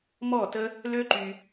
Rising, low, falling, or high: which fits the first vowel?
falling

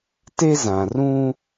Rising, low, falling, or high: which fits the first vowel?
high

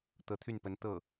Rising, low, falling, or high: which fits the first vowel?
rising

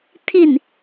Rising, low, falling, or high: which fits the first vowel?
falling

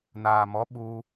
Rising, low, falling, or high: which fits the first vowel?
low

